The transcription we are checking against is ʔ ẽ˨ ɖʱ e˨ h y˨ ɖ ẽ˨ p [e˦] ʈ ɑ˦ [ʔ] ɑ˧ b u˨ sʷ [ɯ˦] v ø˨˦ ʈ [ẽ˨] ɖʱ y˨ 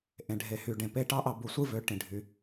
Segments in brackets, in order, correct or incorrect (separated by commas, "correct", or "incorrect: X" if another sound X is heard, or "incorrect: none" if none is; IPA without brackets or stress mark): incorrect: e˧, correct, correct, incorrect: ĩ˨